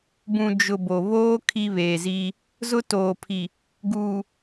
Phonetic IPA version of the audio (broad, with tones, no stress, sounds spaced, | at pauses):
b ũ˨ d͡ʒ ʊ˨ b o˨ β oː˦ kʰ i˦ β eː˨ z iː˦ | z ʊ˦ t oː˨ pʰ i˨ | ɡ uː˨